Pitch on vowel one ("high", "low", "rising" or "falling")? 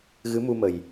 rising